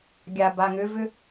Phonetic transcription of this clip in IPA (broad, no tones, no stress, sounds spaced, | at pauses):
ɡʲ a b a ŋ ʏ v ʏ